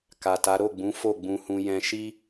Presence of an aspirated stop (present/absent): absent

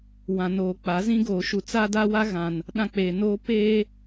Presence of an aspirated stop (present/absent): absent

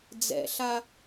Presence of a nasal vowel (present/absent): absent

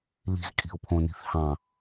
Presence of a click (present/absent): absent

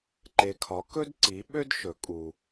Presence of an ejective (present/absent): present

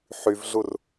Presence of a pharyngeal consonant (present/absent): present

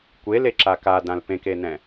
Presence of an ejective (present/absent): absent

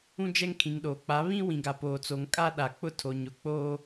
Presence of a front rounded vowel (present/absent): absent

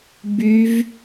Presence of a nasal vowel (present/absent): absent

